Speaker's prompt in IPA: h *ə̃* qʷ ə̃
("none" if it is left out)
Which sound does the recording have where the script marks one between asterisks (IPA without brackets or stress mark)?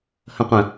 ə̃